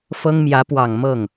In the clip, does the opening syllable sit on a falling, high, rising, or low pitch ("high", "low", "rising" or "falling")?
high